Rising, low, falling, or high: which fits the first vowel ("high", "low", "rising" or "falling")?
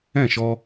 falling